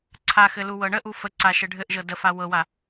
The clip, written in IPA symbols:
ǀʰ a x ɘ l u w ɤ ɳ ə ʔ u f ə ǀ a ʃ ɘ ɖʱ ɘ ʔ ʒ ɤ d ə f a w ɤ w a

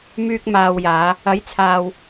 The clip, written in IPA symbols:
m yː˧ k̚ m aː˨ w j aː˨˧ | ɐ˨˥ j t͡sʰ aː˨ w

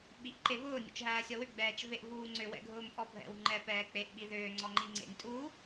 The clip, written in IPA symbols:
ɓ i ʔ ǃ e v ʊː nʲ ṵ t͡ʃ ɦ æː sʲ ɔ w ʏ ɡ͡b ɛː t͡ʃ v e ʔ v uː ŋ͡ǀ ʏ w ɛ̰ ɡʱ ʊː m pʼ ɔ bʱ ɛ̰ w ŋ͡ǃ ɛ p ɛː k͡p e ʔ ɓ i ð ʏː ŋ͡ǀ ɔ ŋ͡ǃ i ŋ͡ǀ ḛ nʲ tʼ u

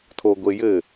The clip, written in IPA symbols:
tʰ o ɡʷ e j ɘ

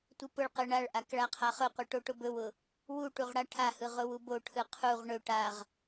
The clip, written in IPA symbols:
tʷ ɯ p ʊ ɭ q ɯ ɳ a ɭ ʔ a k ɭ a qʰ a χ ʊ qʷ ɯ ʈ o ʈ ʊ b ɵ w ʊ | w u ʈ u ʁ ɽ a ʈʰ a h ɯ ʁ ʊ w u b o ʈʰ ɯ qʰ u ʁ ɳ ɵ ʈ a ʁ

